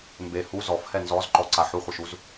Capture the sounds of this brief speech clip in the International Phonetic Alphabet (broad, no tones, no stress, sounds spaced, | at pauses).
m b e h u z ɔ f h ɛ n z ɔ z ǃ ɔ ǀ a ħ u χʷ i ʃ u z